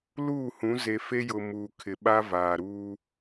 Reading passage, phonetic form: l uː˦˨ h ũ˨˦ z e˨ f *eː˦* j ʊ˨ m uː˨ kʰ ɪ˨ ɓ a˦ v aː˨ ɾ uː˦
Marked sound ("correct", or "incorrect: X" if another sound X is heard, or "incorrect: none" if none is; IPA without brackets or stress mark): incorrect: e˦